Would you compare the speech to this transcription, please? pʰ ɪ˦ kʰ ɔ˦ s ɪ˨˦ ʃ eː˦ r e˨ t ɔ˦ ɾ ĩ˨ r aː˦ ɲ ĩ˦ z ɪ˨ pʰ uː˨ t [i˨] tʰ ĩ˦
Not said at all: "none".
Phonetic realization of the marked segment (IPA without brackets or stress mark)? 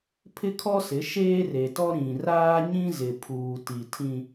i˨